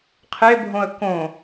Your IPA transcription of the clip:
qʰebʱõə̯ kõ

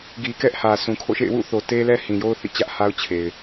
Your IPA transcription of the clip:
ɡi˨kɛ˦ʔ hä˨sũ˨ kʰo̰˦˨ʃḛ˦˨ɪ̯ wṵ˦˨θo˨ te˦lɛ˦ hĩ˨jo˦ʊ̯θḭ˦˨ t͡ɕä˦ʔha˦ʊ̯ t͡ɕʰe˨ɪ̯

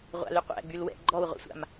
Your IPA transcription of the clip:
ʁʷa̰lyqʷæ̰ ɡ͡bylwɛ̰ ɡ͡ǃɔwʁʷa̰sʷa̰m

